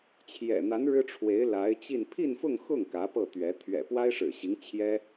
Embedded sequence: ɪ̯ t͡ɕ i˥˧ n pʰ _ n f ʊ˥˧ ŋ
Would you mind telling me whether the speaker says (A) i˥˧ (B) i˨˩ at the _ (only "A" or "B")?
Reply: A